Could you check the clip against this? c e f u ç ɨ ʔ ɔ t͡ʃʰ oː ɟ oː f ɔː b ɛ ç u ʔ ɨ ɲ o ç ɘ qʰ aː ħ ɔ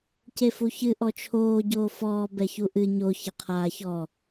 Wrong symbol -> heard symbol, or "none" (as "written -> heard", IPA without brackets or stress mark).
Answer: ħ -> ç